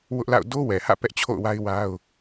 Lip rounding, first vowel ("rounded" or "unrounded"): rounded